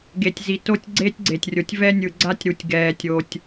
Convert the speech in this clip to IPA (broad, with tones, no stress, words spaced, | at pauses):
ɡe˨tʲzi˨ to˦tʲ ɡ͡ǀeː˦tʲɡ͡ǀe˨tʲrʲo˨tʲ vɛ˦nʲɯ˨ ɡ͡ǀa˦tʲɾu˨tʲ ɡɛː˨tʲo˨tʲ